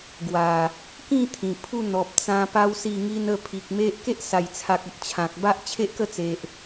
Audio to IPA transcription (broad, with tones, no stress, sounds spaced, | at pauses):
ɡ w a˨˩ | k ĩ˥˧ t̪ʰ ĩ˨˩ pʰ u˥˧ n̪ ɔ˨ p̚ t͡s ã˧ p a˧ w s i˥˧ ŋ i˦ n ə˥˧ pʰ i˨ k̚ m e˦ ʔ k e˦ ʔ s a˨˩ j t͡sʰ a˨ k̚ ə˨ t̚ t͡ɕʰ ã˨ k̚ b a˦ ʔ t͡ɕʰ e˦ ʔ k ə˥˧ t͡s e˨ ʔ